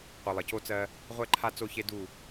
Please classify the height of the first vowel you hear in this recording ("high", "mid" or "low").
high